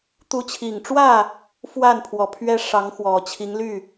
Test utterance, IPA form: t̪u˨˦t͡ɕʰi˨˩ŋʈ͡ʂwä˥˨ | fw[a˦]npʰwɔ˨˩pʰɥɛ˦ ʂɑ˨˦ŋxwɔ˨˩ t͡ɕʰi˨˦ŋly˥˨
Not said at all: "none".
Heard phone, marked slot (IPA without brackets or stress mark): a˥˨